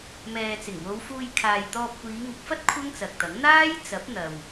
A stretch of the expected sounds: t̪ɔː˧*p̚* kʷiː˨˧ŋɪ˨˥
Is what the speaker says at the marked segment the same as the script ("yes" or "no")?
yes